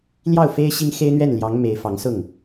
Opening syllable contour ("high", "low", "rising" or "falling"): falling